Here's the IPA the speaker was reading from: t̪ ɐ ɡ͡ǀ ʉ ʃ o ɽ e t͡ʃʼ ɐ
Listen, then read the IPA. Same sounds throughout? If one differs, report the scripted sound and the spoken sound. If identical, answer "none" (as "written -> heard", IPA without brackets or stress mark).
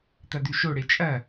ɡ͡ǀ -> d̪